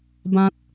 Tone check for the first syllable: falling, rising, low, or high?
high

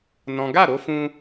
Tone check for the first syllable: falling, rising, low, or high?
high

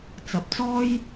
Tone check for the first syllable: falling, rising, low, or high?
rising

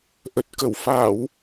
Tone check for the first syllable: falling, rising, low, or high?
low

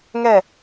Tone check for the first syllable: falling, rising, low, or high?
falling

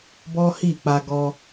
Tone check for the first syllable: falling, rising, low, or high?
high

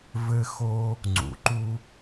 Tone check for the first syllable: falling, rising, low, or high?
high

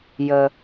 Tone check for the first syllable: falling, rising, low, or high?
low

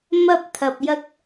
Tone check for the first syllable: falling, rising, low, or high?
high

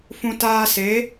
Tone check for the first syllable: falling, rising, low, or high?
high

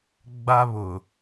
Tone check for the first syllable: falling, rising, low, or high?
high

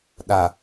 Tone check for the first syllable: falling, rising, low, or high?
low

